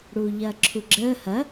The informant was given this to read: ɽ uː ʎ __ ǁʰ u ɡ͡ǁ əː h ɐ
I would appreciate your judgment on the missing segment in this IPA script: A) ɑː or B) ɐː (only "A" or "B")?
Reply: B